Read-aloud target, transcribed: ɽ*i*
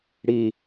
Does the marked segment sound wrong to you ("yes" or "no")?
no